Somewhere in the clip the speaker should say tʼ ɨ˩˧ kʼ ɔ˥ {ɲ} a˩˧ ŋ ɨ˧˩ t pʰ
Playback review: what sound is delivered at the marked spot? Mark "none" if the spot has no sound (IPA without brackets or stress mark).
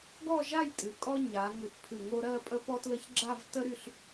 ɲ